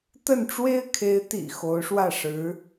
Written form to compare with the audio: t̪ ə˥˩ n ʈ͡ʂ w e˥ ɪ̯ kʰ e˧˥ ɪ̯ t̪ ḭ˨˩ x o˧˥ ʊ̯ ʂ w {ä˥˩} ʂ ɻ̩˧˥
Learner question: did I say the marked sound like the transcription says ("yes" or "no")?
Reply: yes